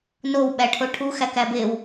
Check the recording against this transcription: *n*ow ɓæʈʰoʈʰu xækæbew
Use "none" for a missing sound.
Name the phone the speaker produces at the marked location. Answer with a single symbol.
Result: n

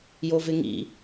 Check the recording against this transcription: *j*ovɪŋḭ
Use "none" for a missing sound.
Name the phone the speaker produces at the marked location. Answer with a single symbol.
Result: j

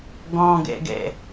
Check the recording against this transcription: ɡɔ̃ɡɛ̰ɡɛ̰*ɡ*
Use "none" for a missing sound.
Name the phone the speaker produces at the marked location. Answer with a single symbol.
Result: none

